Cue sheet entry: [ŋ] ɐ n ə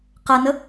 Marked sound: incorrect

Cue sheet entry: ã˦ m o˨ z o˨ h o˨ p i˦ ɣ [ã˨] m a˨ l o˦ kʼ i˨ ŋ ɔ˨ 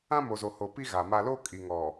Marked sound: incorrect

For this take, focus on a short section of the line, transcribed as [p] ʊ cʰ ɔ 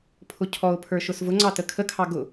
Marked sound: incorrect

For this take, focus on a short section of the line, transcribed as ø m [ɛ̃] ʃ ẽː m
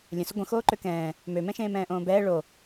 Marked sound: correct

